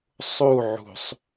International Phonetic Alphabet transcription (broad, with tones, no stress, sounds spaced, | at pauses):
sˤ u˦˨ ʕ ṳ˨ sˤ